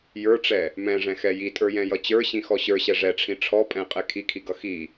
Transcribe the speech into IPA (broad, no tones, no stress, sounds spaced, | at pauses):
j ə˞ ʈ͡ʂ ɛ | m ɛ̃ ʐ ɛ̃ x ɛ j i tʼ ə˞ j ɛ̃ j ʌ t͡ɕ ə˞ ɕ ĩ x ɔ ɕ ə˞ ɕ ɛ ʐ ɛ ʈ͡ʂʰ ĩ ʈ͡ʂʰ ɔ pʼ ɛ̃ qʼ ɛ kʰ i kʰ i ɡ ʌ x i